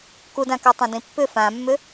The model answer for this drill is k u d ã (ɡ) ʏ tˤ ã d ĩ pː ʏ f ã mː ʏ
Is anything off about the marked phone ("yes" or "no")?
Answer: yes